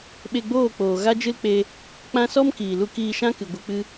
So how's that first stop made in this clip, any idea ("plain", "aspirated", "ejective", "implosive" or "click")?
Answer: implosive